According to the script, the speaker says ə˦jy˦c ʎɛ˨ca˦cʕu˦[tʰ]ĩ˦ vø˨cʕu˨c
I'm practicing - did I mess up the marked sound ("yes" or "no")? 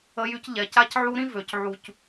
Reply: yes